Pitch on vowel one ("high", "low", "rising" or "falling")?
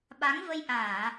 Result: rising